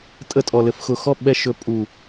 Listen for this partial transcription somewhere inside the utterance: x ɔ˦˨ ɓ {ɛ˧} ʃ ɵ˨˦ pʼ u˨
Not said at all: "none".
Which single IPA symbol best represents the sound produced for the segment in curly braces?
ɛ˧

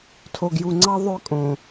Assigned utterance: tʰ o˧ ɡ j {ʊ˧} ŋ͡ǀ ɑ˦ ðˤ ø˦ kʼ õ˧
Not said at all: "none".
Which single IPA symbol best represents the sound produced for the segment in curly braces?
u˧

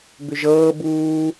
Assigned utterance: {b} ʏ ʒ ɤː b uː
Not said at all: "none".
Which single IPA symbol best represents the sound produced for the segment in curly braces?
b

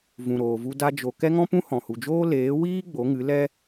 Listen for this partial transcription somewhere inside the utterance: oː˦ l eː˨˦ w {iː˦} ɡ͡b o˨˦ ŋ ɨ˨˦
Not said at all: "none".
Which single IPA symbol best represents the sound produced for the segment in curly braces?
iː˦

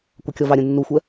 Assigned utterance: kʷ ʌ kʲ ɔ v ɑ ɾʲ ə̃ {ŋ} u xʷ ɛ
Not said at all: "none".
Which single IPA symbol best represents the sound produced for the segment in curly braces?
nː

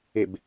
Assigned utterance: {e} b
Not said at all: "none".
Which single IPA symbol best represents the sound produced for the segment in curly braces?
e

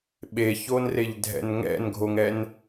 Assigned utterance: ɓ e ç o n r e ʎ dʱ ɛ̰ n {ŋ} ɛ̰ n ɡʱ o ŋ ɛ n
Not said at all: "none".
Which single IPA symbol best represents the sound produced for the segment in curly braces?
ŋ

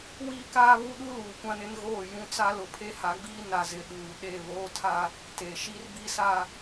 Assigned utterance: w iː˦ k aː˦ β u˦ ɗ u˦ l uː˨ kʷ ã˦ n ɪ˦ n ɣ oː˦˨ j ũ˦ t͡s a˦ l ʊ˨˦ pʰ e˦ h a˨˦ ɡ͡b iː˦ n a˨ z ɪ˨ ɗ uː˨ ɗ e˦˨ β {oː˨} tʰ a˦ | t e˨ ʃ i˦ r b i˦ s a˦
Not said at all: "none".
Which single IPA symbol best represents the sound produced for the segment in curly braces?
oː˦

